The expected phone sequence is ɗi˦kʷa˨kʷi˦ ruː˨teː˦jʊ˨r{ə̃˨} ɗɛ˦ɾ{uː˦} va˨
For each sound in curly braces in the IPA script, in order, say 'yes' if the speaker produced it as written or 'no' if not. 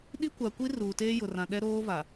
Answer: no, no

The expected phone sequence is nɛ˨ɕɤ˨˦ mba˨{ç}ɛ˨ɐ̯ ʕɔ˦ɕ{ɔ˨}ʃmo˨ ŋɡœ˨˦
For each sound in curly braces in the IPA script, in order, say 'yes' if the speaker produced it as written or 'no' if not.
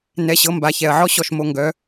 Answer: yes, yes

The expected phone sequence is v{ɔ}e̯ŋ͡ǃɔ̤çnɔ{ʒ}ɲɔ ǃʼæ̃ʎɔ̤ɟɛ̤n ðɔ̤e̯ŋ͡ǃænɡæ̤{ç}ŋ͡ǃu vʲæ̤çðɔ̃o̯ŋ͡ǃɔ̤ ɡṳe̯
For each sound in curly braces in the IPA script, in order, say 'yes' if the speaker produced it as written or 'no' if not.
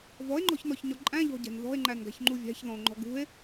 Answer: yes, no, yes

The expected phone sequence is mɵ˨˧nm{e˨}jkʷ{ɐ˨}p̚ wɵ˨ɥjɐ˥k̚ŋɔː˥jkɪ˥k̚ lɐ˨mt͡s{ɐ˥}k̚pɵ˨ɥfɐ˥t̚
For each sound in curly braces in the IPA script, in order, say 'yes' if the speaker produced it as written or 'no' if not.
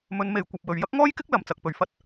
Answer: yes, yes, no

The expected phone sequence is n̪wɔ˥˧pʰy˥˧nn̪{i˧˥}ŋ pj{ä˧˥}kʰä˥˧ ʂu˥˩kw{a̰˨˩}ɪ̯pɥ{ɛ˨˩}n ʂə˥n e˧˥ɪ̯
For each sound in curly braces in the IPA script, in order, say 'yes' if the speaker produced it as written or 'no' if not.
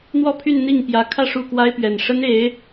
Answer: no, yes, no, yes

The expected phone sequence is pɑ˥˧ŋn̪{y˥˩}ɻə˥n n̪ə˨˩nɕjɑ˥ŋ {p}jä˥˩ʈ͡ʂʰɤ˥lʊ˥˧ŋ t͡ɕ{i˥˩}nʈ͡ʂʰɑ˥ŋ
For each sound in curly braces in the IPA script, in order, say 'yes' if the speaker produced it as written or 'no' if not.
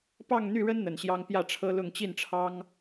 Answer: yes, yes, yes

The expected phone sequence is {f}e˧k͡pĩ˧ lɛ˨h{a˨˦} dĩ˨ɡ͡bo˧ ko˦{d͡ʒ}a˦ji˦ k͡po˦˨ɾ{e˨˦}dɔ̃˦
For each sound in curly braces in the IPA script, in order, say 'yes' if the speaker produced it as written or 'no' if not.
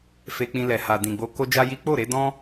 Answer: yes, no, yes, yes

